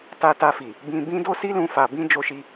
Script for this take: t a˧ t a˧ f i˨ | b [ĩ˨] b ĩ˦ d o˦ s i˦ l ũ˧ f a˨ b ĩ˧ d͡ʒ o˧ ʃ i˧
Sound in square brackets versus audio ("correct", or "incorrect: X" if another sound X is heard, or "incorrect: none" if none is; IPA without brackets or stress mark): incorrect: ĩ˧